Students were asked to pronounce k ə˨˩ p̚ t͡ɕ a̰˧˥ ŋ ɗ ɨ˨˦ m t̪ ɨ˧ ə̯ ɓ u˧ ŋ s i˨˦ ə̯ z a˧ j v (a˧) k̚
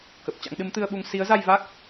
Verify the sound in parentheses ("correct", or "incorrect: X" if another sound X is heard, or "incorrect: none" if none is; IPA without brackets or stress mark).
incorrect: a˦˥